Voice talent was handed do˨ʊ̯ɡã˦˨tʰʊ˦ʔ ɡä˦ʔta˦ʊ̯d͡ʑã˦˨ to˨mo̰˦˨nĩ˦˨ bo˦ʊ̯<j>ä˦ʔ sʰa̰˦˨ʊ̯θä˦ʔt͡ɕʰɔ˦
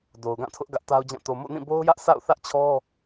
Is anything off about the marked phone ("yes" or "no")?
no